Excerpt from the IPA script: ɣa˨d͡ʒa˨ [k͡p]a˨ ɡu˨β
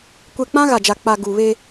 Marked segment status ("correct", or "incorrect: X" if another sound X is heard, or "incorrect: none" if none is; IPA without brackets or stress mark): correct